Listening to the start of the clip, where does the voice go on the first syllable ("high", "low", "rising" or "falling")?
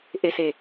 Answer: low